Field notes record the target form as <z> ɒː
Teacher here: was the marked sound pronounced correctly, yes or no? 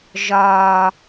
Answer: no